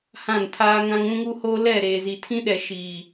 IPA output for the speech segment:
hã˦˨ntʰaː˦ŋã˦ŋ ũ˦ŋu˦hoː˦ lɛ˦˨ ɾeː˨zi˨tʰĩ˦ɗɛ˨ ʃiː˨

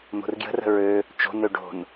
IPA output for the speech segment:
n̪o̤rɡjə̤rə̤ ɹø | t͡ʃo̤nø ɖo̤n

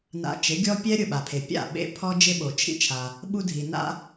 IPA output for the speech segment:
na̰˧t͡ʃɪ˩˥ɡʲɔ˥ pʲɛ˥ ɾʲʊ˥˩ɓa˩pʰe˩ pʲa̰˥˩ɓḛ˧ pʰɔ˥d͡ʒɪ˥ɓo˩ t͡ʃʰḭ˥t͡ʃʰa˩ | ɓu˥dʱi˩na̰˥

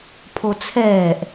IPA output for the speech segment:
pʰot͡sʰɛːʔ

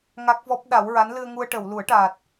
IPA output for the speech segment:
ŋa˦˥k̚vɔ˦˥p̚ɗa˨˩˦w ɹa˧˥nlɨ˧ə̯ŋu˧ə̯ʈə˨˩˨w lu˨˩˦ə̯ʈaː˨˩t̚

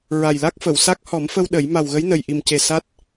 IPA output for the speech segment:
ɹa˨˩jla˦˥k̚ fə˨˩˨wsa˦˥k̚ hɔ˨˩˦mfə˧w ɗə˨˩˦j ma˨˩wɣə˧˥j nə˨˩jʔi˨˩mce˨˩ sa˦˥t̚

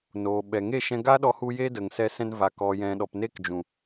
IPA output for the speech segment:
noː˨ɓɛ˨ŋe˦˨ ʃɛ̃˧ɡa˦ɗɔ˧hu˧ je˦də˨ŋsɛ˧ sɛ̃˧nva˨ kɔ˨jɛ̃˨ɗɔ˨p ne˦kd͡ʒũ˨

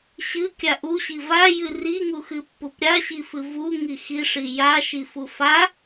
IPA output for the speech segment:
ɕɨkʲa ʔuɕi vajɨ riŋuxɨpːup ɾʲaɕifɨ vuŋi xiʂi jaʃifu fa

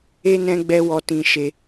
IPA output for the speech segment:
e˦ nɛ̃˦ɡ͡bɛ˦ wɔ˧ tĩ˧ʃe˧

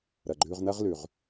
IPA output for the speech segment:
ɾɐ˩ɡ͡ǃʉ˧ʁnɐ˥ʁlʉ˩ʁ

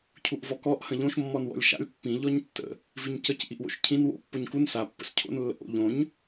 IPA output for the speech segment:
cʰuʔvɔkɔʔ hə̃ʎõʃ mːɔnwɔ̰lʲʃa̰lʲ pːĩ ʎɔɲtːə̰ | viɲcəc ʔiʔwo̰ʃcʰĩn wo̰ pːoɲkun sa pːə̰scʰo̰n lːə̰ʔo̰ ʎõɲ

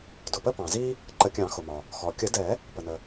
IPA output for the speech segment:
dʊ˩pə˦pɑ̃˩zi˦ | ǃə˨˩˦kʲɑ̃˨˩˦xʊ˩mɒ˩ | xɔ˩kʲə˨˩˦dɛ˨˩˦ | pə˩nə˩

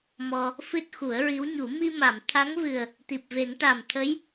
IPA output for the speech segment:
mɔ˧ | fɨ˦˥t̚xu˨˩˦ə̯ɹi˧˥wɲu˨˩˦ mi˧ma˨˩˨m t̪ʰa˧˥ŋvɨ˨˩ə̯ | t̪i˨˩p̚ve˨˩˦ŋ ʈa˨˩m t̪ʰə˧˥j

